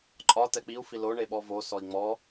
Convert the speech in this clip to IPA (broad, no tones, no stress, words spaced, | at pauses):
ǃʼɒ tɛk͡piu̯fi lo ɳeɓɔvo sɔi̯ŋ͡mɔ